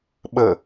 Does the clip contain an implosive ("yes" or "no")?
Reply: yes